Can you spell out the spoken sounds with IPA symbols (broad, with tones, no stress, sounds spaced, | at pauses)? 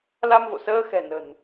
l a˧ m v o̰˧˨ s əː˧ x ɛ̤˨˩ n ə̤˨˩ n